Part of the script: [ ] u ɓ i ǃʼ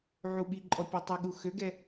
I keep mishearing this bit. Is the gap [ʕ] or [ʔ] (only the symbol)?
ʕ